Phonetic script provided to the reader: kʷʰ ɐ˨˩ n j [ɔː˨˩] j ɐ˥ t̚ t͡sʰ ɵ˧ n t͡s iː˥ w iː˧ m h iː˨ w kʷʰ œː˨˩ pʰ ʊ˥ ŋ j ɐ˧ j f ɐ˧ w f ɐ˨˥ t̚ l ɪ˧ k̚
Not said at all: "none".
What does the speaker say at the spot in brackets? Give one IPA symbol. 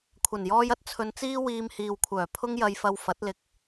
ɔː˥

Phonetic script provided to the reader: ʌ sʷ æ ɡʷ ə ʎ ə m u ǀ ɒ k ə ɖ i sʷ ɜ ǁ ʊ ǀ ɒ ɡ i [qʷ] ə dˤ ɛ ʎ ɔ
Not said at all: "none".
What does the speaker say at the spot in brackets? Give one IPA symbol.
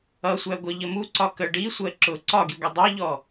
ɡʷ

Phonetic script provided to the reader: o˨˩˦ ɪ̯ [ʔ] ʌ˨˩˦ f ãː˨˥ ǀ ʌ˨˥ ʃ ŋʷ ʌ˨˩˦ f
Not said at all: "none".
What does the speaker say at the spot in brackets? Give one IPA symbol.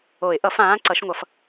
ʔ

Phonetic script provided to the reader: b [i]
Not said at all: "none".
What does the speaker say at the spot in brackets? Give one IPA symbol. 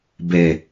e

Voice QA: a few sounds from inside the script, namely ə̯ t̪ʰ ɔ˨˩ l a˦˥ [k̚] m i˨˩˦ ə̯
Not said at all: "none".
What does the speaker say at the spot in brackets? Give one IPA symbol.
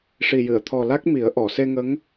k̚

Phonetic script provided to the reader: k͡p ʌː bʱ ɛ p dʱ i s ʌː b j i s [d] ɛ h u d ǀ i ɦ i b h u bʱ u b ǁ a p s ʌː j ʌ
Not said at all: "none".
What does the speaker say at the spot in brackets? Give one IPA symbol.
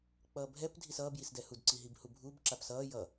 d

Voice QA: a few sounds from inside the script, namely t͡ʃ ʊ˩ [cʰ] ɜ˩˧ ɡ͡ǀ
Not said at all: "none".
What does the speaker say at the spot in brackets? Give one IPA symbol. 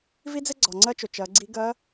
t͡ʃ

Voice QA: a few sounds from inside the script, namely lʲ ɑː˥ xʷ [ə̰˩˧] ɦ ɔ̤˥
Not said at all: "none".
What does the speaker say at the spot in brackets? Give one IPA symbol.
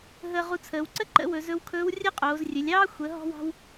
ə˩˧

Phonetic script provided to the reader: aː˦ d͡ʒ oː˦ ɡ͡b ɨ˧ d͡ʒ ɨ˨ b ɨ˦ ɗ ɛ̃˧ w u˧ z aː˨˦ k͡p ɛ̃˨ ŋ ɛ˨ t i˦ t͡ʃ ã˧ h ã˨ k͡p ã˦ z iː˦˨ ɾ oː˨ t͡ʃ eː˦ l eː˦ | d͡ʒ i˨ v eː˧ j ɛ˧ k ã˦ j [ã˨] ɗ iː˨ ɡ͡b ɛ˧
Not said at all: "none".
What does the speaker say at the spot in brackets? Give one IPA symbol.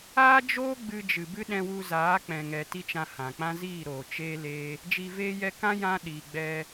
ã˦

